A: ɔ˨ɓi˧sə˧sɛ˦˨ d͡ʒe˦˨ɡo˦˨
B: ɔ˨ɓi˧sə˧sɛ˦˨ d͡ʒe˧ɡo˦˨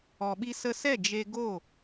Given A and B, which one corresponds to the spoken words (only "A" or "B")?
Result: B